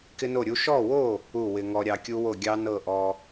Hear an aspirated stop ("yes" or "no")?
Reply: no